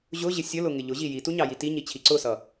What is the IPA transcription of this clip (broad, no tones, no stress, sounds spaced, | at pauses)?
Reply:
ʑ ʊ ʑ ɪ sʲ ə l ʊ ŋ ɪ ʎ ʊ ʑ i j i t u ɲ ɑ j i t i ɲ i t͡ɕʰ i ǀ ʊ s ʌ